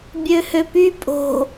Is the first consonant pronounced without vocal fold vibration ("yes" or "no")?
no